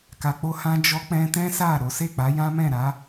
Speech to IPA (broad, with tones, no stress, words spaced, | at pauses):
ka˧k͡po˦hã˦ d͡ʒɔ˦ k͡pɛ̃˦ tɛ̃˦sa˦˨ ɾo˨˦ se˦˨k͡pa˨˦ jã˦mɛ̃˦˨ɾa˨˦